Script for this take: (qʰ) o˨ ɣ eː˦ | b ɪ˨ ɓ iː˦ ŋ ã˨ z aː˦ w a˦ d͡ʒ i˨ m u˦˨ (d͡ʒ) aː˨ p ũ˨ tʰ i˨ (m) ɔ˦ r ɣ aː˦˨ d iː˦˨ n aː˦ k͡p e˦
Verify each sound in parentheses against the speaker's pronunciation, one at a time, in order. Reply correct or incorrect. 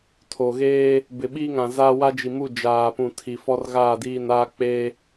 incorrect: tʰ, correct, incorrect: f

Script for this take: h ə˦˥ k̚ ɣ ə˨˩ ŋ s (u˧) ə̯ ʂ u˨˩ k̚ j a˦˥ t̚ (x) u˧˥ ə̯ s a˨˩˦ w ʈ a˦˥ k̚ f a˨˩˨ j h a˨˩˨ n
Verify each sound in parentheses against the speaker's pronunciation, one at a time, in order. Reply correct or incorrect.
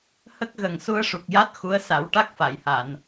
correct, correct

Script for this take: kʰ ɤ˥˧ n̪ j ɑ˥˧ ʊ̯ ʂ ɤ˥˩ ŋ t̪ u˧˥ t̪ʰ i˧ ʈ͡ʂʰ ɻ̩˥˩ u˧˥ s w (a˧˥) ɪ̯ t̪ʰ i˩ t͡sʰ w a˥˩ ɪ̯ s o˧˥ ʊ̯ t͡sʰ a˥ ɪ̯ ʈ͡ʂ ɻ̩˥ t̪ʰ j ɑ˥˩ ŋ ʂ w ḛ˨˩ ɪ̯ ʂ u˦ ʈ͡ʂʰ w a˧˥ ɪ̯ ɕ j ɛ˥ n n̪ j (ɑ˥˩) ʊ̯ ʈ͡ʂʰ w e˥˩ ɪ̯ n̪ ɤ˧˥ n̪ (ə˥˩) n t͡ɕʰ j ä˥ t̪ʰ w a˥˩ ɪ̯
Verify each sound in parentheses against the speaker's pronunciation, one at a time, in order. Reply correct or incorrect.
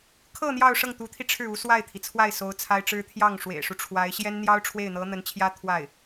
incorrect: a˥˩, incorrect: ɑ˥, incorrect: ə˧˥

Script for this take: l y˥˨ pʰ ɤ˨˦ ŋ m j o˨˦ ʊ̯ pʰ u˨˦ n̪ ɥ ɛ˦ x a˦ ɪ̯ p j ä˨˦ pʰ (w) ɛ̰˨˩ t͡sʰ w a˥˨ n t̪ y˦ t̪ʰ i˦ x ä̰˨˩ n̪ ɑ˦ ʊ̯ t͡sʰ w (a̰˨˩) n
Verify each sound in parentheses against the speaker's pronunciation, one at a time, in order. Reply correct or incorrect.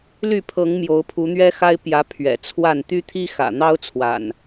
incorrect: ɥ, correct

